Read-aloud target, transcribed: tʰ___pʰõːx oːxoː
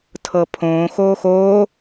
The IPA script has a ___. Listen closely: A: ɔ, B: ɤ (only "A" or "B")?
B